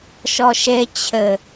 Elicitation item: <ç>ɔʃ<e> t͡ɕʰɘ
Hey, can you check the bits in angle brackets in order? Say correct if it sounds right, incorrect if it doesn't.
incorrect: ʃ, correct

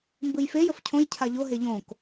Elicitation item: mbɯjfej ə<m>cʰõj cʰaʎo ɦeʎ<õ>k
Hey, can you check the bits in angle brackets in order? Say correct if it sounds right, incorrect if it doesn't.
incorrect: f, correct

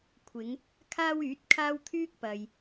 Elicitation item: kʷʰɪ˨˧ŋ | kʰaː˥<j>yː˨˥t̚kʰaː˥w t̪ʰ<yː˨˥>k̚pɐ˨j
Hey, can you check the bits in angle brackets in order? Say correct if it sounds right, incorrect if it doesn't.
incorrect: w, incorrect: yː˥

